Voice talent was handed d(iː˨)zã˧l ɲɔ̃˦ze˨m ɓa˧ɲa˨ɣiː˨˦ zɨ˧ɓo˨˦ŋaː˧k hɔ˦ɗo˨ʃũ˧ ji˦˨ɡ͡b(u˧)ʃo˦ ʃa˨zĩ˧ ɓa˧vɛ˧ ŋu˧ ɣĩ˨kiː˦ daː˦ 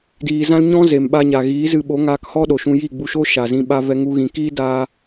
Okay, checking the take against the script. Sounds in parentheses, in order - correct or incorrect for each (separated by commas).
correct, correct